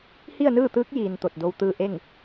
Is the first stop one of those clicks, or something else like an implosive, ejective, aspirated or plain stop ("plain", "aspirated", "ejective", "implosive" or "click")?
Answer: plain